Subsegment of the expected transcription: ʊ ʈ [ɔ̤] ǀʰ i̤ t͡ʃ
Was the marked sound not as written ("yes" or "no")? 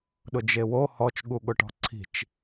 no